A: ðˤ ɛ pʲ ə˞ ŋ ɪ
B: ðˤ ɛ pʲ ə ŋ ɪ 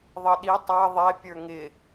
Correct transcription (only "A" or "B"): A